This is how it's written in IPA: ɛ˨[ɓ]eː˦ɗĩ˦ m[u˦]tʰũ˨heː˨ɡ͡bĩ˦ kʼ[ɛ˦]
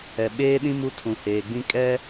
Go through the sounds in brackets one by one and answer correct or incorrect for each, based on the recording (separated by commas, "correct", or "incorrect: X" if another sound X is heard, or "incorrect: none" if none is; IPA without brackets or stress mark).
correct, correct, correct